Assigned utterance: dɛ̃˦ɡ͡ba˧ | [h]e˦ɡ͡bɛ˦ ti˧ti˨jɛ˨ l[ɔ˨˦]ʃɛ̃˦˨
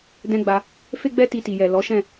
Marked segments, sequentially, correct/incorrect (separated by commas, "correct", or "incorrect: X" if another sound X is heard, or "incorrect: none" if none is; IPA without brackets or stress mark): incorrect: f, correct